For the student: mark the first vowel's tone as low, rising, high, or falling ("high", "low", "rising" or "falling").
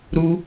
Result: high